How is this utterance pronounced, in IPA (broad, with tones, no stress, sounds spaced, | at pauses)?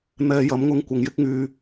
n̪ ɛː˧ j ɐ˨˥ m ŋ ʊ˧ ŋ kʷ ɐ˨ ŋ j ɪ˥ k̚ ŋ yː˧